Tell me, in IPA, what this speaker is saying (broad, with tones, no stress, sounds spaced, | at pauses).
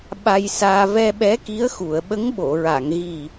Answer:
ɓ a˧ j s aː˧ v ɛ˧ ɓ ɛ˧˥ k i˧˥ ə̯ x u˨˩˨ ə̯ ɓ ə˧˥ ŋ ɓ o˨˩˨ ɹ a˨˩˨ ŋ ɣ i˨˩